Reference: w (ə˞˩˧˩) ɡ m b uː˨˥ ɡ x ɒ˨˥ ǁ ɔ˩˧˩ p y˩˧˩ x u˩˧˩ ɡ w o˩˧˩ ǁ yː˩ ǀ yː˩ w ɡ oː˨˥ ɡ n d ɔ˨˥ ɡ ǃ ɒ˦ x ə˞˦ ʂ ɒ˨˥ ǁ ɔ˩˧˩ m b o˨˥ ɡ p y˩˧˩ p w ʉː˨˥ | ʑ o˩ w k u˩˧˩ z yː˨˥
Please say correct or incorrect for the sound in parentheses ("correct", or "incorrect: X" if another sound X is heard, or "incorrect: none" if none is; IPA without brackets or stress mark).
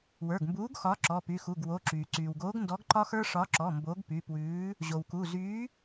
correct